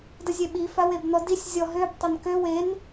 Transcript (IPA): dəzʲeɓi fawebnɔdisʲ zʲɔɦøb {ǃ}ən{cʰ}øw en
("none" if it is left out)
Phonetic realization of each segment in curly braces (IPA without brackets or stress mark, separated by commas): tˤ, k